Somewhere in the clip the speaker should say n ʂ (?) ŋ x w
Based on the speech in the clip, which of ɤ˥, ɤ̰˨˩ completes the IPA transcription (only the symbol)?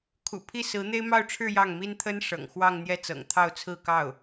ɤ̰˨˩